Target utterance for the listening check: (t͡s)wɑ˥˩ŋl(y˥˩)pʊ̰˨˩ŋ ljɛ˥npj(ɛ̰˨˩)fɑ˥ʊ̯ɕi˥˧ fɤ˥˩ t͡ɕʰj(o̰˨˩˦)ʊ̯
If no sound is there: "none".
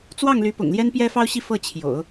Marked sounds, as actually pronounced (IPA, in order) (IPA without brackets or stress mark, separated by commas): t͡s, y˧˥, ɛ˥, o̰˨˩˦